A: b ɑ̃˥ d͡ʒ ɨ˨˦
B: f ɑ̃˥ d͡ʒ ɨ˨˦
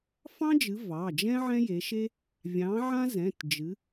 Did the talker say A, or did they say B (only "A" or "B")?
B